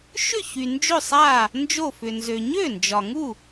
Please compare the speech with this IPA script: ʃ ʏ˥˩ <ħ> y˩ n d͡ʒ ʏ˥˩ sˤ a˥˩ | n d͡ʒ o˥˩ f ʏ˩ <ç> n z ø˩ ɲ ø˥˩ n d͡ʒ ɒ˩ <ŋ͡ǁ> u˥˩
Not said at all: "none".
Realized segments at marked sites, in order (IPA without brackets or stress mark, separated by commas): ç, none, ŋ